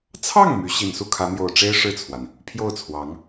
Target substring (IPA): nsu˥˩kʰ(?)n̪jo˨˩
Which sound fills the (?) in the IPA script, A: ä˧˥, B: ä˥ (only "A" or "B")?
A